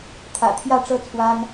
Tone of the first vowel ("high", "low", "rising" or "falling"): low